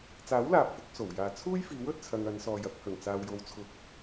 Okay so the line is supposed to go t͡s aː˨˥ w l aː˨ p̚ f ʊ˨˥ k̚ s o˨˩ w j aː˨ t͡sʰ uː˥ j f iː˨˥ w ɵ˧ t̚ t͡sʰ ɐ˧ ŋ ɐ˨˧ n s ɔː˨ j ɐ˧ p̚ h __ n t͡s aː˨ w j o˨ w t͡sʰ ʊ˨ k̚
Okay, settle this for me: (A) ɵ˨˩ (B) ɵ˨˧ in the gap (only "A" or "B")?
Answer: A